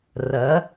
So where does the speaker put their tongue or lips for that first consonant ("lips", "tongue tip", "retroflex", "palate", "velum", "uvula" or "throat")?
tongue tip